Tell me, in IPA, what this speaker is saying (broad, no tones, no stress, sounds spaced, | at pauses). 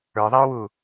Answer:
ə˞ ðˤ ɛ ʊ̯ w u